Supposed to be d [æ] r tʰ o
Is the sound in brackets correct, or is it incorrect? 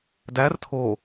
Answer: correct